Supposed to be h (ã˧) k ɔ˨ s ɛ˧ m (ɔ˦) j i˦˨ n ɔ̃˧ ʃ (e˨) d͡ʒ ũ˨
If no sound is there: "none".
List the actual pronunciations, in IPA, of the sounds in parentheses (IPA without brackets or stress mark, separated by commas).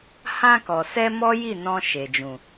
ã˧, ɔ˦, e˨